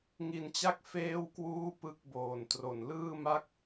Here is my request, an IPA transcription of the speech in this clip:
ŋ i˧ n t͡ɕ a˥˩ k̚ f eː˥˩ w k w uː˥˩ p ɯ˦˥ k̚ b oː˨˩ n t r o˨˩ n l ɯː˥˩ m a˥˩ k̚

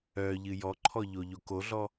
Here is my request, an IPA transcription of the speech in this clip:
œ ʎ ɨ j ɔ ǃʰ ɔ ʎ o ʎ o k o ɮ ɔ

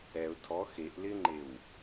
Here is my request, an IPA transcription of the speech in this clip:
ɛ ʊ̯ tʰ ɔ x e ʔ l ɪ ŋ͡ǃ e w

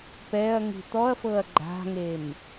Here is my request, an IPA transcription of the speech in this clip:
p ɛ ɐ̯ ŋ i̤ t̪ ɔ ɐ̯ f ɤ ɐ̯ ɡ͡ǃ a̤ ŋ e m

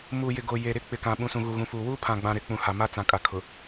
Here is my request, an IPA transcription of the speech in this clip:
m uː˨ j ɪ˨ ɡ o˨ j e˨ ɾ ɪ˦˨ k͡p ɪ˨ k ã˨ ɓ ũ˨ s ũ˨ ɣ u˨ ɣ ũ˨ f uː˨ w uː˦ pʰ ã˨ ɡ͡b ã˨ ɾ ɪ˨ k͡p ũ˨ h a˨ m a˦ t͡s ã˨ kʼ a˨ kʰ ʊ˨

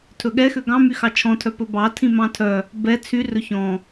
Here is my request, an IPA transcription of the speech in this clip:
tʰ ɵ ɠ ɛ x ø ɡ ɑ̃ m y x ɑ t͡ʃʰ ɔ̃ tʰ œ p ɵ b ɑ tʰ ĩ m ɑ̃ tʰ œ | b ɛ t͡sʰ y r ɵ ç ɔ̃

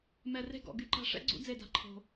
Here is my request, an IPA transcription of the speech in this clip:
m ɛ˨˩ r e̤˦˨ ɡ ɔ̰˨˩ ɡ y˦˥ ǃ a̤˦˨ ʂ ɛ̰˨˥ ɡ͡ǀ ṵ˨˥ d͡z e˦˨ d a̤˨˥ ǃʰ o̤˨˩

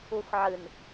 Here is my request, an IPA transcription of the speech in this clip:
u x ʕ ɨ n

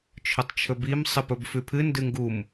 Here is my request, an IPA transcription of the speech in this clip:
t͡ʃʰ ɵ tˤ t͡ʃʰ ɵ b i m sˤ ɨ p ɵ b f ʉ pʰ ɨ n d ɨ ŋ ɡ u m

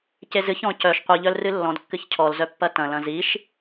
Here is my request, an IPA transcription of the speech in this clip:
c e z ɨ ç ɔ̃ c œ ʃ qʷ i ʎ œ l r ɨ lː ɔ̃ d kː ɨ ç cʰ ɔ l z œ pː ɐ t ɐ̃ l ɐ̃ z i ʃ

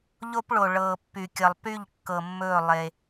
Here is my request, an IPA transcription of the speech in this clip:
ʎ o˦ p ɭ o˨ ɭ ɤː˨ pː y˨ kʲ ə˨ lˠ p y˦˨ ʎ kː ɤ˨ mː ɵː˦˨ lˠ e˦

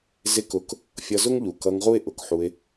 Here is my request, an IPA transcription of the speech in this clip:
z ɪ˧ k ʊ˨˦ k | fʲ ʌ˧ z ʊ˦ ŋ ʎ u˨ k ʌ˧ ŋ ʁ u˦ ɪ̯ ʔ ʊ˨ k ħ u˧ ɪ̯

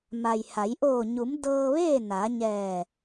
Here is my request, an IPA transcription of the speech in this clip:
m a˩ j h a˩˧ j ʔ oː˧˩ ɲ u˩˧ m d ɤː˧ ʋ eː˥˨ n a˩˧ ɲ ɛː˧˩

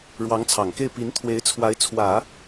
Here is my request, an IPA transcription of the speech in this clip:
ɻ w ɑ˧˥ ŋ t͡sʰ ɑ˨˩ ŋ k e˥˩ ɪ̯ p i˧˥ n t̪ʰ w e˧˥ ɪ̯ t͡sʰ w a˧˥ ɪ̯ t͡sʰ w ä˨˩˦

